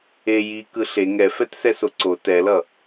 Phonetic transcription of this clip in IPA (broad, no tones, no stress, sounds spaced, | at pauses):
e j i k ɯ ɬ e ŋ ɛ f ɛ t s ɛ s o ǀ o t ɛ l ʌ